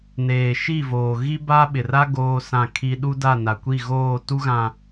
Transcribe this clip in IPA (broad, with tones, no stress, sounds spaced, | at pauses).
n eː˨ ʃ i˦˨ v oː˨ ɣ i˦ b a˦ ɓ ɪ˨ r a˦ ɡ oː˦ s ã˦˨ kʰ i˦ ɗ u˦ d a˦˨ n a˨ kʷ i˦˨ ɣ oː˦˨ t u˦ ɣ ã˨